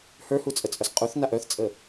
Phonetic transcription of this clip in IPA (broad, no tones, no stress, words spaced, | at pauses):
hə˞hut͡sʼət͡sʼœs qʼuθnaʔ œθt͡sʼə